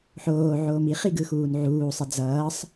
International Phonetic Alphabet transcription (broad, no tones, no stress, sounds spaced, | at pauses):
ħ oː ʕ oː m i χ i ɡ ɯ x uː n ʕ uː sˤ ɛ d͡z ʌː sˤ